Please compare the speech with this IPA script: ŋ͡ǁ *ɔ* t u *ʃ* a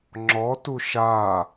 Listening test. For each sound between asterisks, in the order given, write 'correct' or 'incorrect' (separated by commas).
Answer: correct, correct